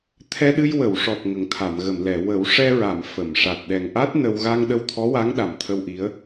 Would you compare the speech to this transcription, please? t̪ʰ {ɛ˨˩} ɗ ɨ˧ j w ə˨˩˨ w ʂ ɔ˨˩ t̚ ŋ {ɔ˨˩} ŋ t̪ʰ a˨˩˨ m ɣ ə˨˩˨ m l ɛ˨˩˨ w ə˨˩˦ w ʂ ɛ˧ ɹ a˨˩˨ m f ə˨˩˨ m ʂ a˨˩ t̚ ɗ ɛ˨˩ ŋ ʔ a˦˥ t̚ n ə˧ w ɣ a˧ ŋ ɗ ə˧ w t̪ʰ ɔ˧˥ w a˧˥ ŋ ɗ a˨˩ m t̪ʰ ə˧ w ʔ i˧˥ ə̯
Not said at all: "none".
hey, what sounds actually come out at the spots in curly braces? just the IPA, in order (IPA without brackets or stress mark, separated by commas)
ɛ˧, ə˨˩